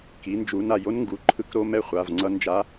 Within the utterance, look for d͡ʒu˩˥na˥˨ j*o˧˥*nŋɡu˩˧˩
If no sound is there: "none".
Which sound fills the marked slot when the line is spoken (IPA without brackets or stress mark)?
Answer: o˧˥